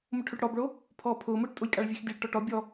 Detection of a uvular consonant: absent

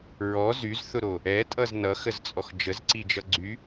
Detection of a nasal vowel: absent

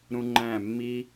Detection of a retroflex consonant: absent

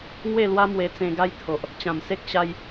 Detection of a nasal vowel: present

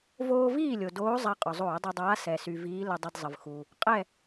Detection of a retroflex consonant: absent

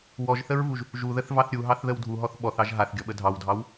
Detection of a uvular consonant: absent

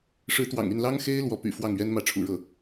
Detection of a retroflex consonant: present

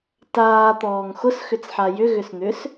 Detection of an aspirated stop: absent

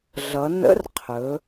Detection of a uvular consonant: present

